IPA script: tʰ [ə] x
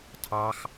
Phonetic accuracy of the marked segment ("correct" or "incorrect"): incorrect